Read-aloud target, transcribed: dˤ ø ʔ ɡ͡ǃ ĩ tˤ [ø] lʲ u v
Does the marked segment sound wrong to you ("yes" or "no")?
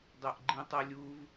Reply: yes